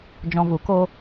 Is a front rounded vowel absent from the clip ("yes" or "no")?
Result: yes